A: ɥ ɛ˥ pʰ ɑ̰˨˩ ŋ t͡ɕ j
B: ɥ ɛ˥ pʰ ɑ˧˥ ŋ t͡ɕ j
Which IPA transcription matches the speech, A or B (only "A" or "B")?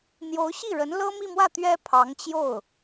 B